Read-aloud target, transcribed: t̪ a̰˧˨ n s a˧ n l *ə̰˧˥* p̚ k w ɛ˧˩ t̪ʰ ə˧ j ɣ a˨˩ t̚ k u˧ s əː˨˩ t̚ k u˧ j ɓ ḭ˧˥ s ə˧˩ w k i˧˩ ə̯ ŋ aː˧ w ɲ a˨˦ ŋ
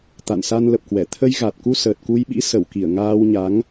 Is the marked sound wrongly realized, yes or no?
yes